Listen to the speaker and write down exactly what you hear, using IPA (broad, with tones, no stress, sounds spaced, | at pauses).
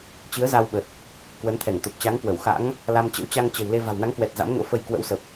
t͡ɕ ɨ˨˦ ə̯ z a˧ w ɓ ə˨˩ t̚ | k w ə˨˦ n t̪ʰ ɛ˧˩ ŋ t̪ o˨˩ p̚ t͡ɕ a˨˦ ŋ k w ə˧˩ w x a̰˧˥ ŋ | l a˧ m t͡ɕ ə̰˧˥ w t͡ɕ a˧ ŋ t͡ɕ ə̤˨˩ w l e˧ v a̤˨˩ w n a˨˦ ŋ k w ɛ˨˩ t̚ z a̰˧˥ m ŋ o̰˧˥ f ə˧ j k w ə̰˧˥ w s ə˨˩ p̚